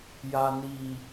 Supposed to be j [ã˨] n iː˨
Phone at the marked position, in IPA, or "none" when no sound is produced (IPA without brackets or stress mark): a˨